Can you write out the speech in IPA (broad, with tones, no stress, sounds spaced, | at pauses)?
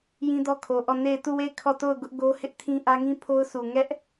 j ĩ˦ d ɔ˦ kʰ o˨ ʔ ɔ˦˨ n e˦˨ ɪ̯ t u˦˨ w e˦˨ ɪ̯ kʰ ɔ˦˨ t o˦˨ ʊ̯ ɡ ʊ˦ ʔ ɡ o˦ h ɪ˦ ʔ tʰ ĩ˦ ʔ ä˦ ŋ ĩ˦ pʰ o˦ ʊ̯ sʰ u˨ ŋ ɛ˦ ʔ